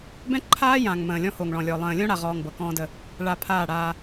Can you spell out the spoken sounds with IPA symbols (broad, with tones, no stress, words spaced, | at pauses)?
bɛ̃˦ǃʰaː˦jã˨ŋ mə̃ː˨lʲɔ̃˦ ho˨ŋɭɔ̃˨lʲɔ˨ lˠə̃ː˨lʲõ˦ɽa˨ʁɔː˨ŋ bɤ˨kɔ̃ː˦də˦ | ɭa˨ pʰaː˦˨ɽaː˦